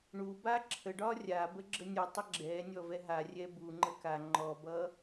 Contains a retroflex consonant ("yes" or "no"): yes